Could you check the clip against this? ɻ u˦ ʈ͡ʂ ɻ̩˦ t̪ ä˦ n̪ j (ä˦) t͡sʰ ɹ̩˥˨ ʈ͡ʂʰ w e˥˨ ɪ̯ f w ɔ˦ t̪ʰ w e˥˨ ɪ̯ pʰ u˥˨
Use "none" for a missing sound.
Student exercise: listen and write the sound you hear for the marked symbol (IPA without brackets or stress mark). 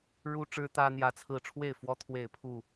ä˦